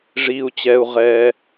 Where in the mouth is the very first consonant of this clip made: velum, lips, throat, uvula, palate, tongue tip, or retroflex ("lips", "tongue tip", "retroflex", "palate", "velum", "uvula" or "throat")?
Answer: retroflex